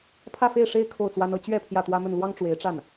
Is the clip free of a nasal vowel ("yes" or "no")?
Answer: yes